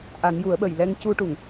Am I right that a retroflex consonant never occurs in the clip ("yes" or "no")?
no